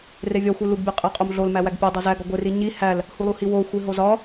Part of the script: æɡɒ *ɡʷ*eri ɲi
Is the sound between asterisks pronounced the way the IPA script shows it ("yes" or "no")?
yes